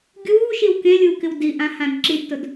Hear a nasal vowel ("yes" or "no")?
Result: yes